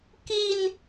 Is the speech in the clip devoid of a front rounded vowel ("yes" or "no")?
yes